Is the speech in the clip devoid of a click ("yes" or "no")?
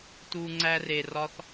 no